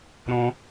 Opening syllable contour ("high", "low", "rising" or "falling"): high